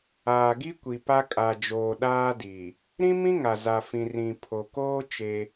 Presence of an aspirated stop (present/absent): present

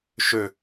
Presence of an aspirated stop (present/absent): absent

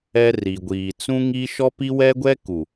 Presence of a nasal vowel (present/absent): present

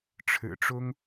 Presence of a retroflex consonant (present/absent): present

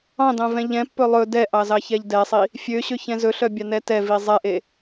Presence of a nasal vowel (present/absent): present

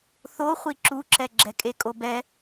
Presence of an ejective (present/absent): present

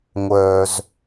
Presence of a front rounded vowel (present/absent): present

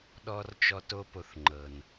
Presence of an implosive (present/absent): present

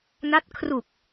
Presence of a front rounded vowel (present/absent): absent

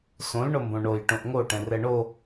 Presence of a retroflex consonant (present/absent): present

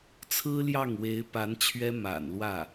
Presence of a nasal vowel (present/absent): absent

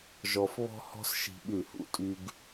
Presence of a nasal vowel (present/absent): absent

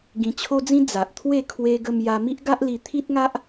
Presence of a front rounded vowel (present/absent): absent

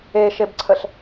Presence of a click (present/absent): present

